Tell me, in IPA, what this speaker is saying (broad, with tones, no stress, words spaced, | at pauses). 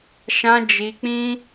ʃã˧ d͡ʒi˧k͡pĩ˦